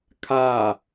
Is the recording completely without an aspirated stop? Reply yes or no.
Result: no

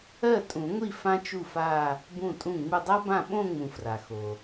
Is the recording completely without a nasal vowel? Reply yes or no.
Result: no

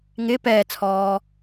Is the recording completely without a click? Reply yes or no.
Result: yes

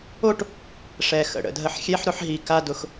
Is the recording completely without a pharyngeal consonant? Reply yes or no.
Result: no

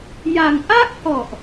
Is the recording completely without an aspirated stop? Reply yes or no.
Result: yes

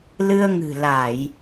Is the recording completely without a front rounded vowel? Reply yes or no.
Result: yes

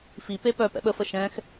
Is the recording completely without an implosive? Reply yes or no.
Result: no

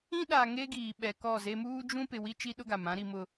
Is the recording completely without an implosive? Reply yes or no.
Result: no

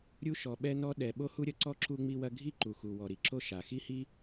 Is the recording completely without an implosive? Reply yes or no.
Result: no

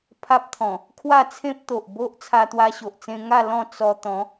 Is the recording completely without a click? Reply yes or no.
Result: yes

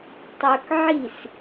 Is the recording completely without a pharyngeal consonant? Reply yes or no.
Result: no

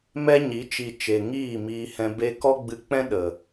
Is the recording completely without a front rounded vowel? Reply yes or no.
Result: yes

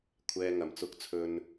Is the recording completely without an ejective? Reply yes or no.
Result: yes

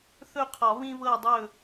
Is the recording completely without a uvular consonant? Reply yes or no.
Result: no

